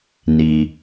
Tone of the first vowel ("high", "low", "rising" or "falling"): low